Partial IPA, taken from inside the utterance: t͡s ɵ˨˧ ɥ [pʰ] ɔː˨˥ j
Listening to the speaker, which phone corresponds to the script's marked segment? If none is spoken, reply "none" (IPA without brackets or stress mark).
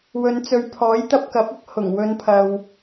pʰ